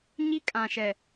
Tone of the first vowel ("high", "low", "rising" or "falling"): high